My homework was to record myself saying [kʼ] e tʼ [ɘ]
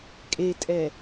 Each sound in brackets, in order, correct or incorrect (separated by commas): correct, incorrect